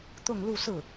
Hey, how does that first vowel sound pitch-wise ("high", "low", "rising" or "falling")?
falling